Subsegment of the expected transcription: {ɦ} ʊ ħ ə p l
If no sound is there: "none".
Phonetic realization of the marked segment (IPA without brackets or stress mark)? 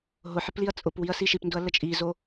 ɦ